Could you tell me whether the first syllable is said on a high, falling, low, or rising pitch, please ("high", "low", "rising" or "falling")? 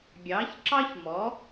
rising